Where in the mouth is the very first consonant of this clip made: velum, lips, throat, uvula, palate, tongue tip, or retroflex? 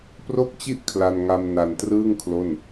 lips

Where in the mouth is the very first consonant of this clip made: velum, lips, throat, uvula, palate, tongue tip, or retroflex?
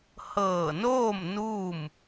throat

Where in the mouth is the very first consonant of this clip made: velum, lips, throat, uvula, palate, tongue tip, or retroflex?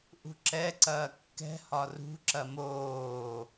throat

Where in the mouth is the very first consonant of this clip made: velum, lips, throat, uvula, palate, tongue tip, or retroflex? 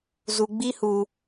tongue tip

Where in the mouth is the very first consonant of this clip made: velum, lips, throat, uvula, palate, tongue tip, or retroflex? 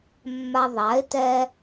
lips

